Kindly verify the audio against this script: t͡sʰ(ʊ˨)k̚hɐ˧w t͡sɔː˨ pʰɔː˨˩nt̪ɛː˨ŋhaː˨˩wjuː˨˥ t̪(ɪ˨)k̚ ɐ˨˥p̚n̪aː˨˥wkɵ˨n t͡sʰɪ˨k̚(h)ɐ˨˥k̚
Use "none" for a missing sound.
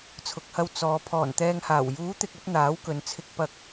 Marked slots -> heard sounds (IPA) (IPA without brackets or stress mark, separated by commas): ʊ˨, ɪ˨, p